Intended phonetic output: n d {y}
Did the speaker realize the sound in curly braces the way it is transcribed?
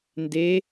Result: no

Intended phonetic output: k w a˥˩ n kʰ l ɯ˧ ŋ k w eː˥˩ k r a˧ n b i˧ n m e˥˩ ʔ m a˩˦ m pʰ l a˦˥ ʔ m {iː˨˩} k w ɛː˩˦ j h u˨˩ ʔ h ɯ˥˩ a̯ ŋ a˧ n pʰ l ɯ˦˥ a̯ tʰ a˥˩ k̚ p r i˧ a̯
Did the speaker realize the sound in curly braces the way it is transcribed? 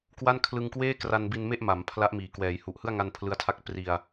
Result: yes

